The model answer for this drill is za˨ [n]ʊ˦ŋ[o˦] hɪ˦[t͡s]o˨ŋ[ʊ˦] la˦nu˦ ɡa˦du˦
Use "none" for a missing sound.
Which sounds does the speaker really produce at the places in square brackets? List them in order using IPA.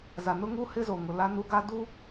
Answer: n, u˦, z, ʊ˨

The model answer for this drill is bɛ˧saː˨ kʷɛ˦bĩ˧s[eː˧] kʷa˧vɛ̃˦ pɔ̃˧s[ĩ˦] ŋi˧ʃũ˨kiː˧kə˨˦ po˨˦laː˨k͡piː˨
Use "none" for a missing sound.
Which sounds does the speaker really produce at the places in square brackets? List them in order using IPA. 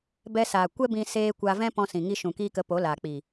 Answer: eː˧, ĩ˨

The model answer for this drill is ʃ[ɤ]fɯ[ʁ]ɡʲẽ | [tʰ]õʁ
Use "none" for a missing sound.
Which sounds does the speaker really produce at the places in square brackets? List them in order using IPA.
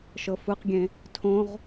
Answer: ɤ, q, tʰ

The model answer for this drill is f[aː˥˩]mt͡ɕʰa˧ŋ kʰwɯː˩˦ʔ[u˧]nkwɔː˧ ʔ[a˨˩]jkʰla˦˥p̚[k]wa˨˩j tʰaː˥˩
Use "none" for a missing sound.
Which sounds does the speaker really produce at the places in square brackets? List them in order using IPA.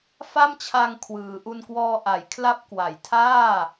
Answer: a˥˩, u˧, a˨˩, k

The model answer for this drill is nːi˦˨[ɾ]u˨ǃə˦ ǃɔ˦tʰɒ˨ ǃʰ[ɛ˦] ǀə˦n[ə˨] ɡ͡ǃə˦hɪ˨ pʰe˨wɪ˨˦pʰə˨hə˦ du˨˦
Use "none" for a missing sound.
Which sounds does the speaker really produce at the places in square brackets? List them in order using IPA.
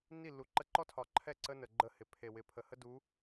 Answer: lː, ɛ˦˨, ə˨

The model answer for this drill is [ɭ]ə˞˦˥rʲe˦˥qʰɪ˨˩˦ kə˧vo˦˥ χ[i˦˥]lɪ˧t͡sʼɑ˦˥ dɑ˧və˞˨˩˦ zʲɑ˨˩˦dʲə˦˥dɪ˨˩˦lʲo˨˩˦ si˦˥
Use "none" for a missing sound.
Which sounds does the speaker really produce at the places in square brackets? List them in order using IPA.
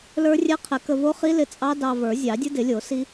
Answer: l, i˦˥

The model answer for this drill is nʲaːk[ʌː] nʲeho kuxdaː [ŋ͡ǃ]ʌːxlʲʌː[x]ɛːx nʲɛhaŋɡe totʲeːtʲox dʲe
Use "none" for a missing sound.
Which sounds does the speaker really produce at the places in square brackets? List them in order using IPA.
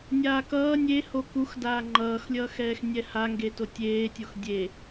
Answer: ʌː, ŋ͡ǃ, x

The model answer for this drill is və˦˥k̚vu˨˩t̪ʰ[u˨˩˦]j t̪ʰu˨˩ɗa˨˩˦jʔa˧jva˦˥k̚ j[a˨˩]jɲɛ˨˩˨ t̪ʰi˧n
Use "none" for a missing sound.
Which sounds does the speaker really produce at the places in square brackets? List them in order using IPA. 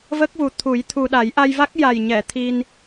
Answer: u˨˩˦, a˨˩

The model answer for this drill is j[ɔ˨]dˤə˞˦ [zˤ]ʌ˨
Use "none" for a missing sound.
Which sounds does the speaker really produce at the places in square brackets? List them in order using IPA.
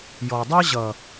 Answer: ɔ˨, ʑ

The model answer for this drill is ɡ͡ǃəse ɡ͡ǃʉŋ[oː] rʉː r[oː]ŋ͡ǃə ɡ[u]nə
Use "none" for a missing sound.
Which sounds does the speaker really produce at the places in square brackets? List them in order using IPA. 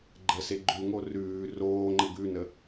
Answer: o, oː, ʉ

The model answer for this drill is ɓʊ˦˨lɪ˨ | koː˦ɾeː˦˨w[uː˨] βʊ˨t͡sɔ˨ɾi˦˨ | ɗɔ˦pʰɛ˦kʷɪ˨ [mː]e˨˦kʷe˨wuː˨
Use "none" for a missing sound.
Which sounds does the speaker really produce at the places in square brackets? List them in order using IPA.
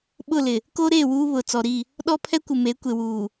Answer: uː˦, m

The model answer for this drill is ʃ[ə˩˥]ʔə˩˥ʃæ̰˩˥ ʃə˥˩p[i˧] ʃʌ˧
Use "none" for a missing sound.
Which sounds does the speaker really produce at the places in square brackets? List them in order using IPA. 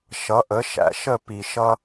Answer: ʌ˩˥, i˩

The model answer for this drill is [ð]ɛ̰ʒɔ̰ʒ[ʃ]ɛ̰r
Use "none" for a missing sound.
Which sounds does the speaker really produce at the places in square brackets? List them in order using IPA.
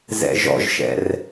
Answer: z, ʃ

